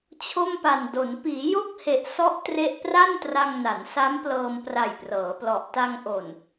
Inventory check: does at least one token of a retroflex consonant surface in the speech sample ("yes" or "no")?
no